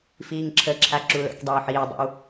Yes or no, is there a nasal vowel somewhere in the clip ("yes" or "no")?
no